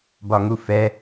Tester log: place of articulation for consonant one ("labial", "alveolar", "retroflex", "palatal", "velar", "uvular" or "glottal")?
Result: labial